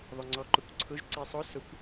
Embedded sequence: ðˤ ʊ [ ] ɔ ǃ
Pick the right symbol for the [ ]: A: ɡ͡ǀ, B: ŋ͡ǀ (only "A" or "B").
B